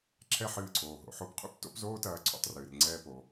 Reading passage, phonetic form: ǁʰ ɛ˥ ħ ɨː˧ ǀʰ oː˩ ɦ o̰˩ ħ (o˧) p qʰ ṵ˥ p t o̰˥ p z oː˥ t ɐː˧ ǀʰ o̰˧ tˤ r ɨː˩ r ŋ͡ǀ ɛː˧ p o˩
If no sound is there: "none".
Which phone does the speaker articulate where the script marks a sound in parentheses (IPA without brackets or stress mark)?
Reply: o˧